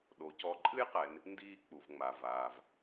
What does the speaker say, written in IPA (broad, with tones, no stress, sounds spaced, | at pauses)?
ɗ o˩˧ c ɔ˨˥ ǃʼ ɨ˥ j q ɛ˩˧ n | n d iː˥˨ k͡p u˩ v ŋ͡m a˩ v aː˩ v